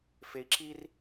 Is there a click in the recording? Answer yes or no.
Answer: yes